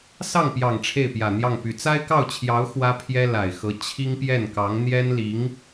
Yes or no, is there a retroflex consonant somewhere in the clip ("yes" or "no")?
yes